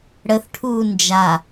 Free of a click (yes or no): yes